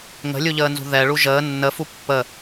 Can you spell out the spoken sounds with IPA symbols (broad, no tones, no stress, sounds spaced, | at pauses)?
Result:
ŋ ə̤ lʲ u ʎ əː n z ṳ ð ɛ ɭ u ʒ əː nː ə f u pː ə